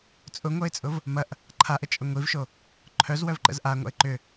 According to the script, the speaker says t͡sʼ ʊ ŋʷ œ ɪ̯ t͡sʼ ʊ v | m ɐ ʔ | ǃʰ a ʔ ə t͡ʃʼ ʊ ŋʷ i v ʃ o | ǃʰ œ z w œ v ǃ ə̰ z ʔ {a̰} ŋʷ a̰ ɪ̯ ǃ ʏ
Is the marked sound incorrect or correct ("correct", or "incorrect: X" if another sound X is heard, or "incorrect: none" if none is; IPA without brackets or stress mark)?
incorrect: a